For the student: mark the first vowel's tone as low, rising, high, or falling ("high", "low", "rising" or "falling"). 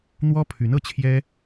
high